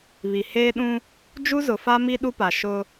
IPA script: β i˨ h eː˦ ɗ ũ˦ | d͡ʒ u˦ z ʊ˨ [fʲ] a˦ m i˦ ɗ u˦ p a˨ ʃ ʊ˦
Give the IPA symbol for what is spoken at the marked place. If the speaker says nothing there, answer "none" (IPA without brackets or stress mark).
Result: f